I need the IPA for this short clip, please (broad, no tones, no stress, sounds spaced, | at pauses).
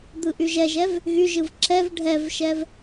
d̪ ɯ ʔ y ʒ ɛ ʒ ɛ v | ɣ y ʒ ɯ v ǁ ɛ v ɖʱ ɛ v ʃ ɛ v